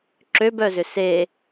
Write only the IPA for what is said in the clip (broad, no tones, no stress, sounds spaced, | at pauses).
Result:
ǁ ø b œ z ʏ s e